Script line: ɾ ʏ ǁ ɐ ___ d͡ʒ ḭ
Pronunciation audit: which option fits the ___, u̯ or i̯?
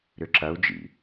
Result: u̯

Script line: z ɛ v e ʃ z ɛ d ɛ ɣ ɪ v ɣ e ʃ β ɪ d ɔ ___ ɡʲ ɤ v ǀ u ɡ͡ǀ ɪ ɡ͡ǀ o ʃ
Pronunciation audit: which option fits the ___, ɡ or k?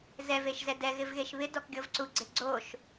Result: k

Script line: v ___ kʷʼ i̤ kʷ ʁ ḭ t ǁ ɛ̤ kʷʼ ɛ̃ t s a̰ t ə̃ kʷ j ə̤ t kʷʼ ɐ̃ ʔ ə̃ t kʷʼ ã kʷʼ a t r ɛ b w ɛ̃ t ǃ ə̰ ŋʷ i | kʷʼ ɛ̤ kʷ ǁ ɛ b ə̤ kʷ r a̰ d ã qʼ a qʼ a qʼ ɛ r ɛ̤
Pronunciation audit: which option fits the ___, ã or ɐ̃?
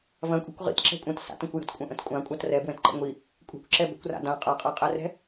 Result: ɐ̃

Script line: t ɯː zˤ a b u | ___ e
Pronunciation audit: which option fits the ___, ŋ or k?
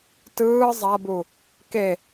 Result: k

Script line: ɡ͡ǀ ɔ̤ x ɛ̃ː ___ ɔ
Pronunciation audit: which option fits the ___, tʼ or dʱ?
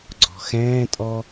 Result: tʼ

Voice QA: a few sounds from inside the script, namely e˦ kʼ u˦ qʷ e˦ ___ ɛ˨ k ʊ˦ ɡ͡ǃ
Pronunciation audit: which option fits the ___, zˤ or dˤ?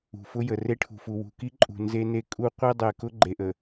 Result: dˤ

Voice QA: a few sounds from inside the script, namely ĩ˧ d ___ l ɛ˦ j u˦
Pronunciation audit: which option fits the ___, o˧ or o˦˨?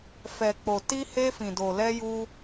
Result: o˧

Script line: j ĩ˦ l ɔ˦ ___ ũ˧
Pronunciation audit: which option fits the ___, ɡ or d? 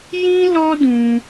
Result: d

